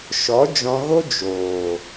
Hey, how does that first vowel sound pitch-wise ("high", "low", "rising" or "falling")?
rising